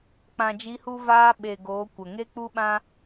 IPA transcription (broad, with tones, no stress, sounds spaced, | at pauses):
k͡p ã˨ d͡ʒ i˨˦ h u˧ v aː˦ ɓ e˨ ɡ oː˨˦ kʷ ə˨ ŋ e˦ k͡p u˦ ɓ ã˦